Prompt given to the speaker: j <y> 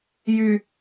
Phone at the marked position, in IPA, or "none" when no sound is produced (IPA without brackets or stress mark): y